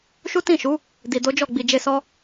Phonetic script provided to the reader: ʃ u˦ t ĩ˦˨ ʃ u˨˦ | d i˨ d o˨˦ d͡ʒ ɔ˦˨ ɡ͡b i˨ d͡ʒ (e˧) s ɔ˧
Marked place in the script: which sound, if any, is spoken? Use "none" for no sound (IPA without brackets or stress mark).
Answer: e˧